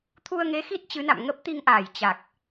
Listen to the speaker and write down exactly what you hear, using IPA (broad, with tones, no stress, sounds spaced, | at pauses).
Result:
t̪ʰ u˧ ə̯ ŋ e˨˦ x i˦˥ t̚ t͡ɕ ɨ˨˦ n a̰˧˨ m ŋ ə˦˥ p̚ t̪ i˧ ŋ ʔ aː˧˩ j t͡ɕ a˨˩ k̚